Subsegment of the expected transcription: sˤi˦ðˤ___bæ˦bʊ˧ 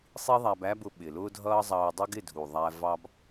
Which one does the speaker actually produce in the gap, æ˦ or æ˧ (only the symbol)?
æ˧